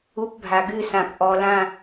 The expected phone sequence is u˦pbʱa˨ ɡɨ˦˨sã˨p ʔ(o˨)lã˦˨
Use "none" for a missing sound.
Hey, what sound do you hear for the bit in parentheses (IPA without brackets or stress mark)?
ɔ˨